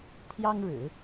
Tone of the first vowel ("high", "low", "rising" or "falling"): high